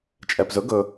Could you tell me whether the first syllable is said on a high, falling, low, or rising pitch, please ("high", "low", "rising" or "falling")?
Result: low